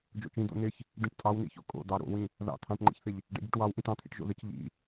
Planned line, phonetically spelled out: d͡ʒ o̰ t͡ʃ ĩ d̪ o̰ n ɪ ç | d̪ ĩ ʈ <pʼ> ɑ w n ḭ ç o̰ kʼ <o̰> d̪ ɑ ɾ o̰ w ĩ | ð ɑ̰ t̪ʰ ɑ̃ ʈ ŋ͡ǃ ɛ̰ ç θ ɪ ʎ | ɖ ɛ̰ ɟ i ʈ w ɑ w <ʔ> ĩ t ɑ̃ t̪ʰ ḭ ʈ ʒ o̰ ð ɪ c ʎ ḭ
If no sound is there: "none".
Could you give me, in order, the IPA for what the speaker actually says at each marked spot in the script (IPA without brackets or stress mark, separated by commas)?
tʼ, o̰, ʔ